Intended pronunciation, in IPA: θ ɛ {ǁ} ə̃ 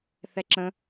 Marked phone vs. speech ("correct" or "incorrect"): correct